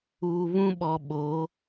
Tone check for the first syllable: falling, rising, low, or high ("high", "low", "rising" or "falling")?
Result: low